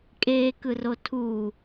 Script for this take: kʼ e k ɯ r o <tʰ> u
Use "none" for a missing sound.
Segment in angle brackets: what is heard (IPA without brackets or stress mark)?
tʰ